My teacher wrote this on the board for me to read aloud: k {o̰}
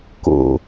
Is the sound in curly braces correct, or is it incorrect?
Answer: correct